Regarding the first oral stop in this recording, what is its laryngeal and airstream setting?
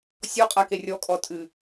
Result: ejective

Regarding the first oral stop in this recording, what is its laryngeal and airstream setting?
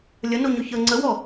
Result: click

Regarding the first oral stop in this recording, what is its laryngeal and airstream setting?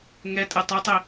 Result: ejective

